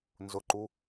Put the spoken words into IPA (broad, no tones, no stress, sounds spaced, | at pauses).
n z ʊ ǃ u